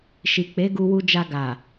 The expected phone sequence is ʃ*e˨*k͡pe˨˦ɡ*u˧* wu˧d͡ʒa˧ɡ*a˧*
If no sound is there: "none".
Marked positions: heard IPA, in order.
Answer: i˨, u˧, a˨

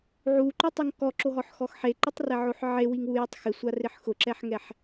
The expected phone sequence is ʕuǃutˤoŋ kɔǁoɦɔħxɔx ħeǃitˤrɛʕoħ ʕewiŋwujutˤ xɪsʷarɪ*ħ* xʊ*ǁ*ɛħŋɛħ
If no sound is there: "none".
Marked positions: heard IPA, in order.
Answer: ħ, ǁ

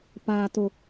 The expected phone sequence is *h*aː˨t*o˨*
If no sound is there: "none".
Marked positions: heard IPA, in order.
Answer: p, o˨

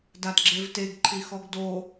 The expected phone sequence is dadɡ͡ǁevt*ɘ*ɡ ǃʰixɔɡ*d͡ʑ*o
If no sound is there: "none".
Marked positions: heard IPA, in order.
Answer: e, d

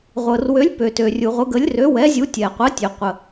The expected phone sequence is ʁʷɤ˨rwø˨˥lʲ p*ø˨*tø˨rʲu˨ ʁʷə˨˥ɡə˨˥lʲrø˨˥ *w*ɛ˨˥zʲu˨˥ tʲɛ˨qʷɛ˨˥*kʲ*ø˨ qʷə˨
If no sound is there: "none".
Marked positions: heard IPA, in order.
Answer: ø˨, w, tʲ

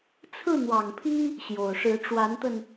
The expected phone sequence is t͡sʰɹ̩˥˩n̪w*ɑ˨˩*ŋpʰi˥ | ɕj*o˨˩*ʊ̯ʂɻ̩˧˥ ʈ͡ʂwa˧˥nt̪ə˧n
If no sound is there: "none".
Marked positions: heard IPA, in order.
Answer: ɑ˨˩, o˨˩

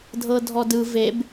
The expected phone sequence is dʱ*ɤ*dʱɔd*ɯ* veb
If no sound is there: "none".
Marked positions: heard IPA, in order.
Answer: ɤ, ɯ

